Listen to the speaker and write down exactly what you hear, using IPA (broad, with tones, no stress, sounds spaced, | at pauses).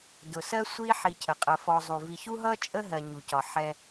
d ʊ˩ s ɜ˦ sʷ i˦ ħ i˨ cʰ ə˩ qʼ ə˨ f ɔ˨ zˤ u˩ v i˨ ç u˥ ɦ ʌ˥ t͡ʃʼ ə˦ ɦ ɜ˩ ɲ u˩ c ɒ˩ ħ ɛ˩